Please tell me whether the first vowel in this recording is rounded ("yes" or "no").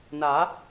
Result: no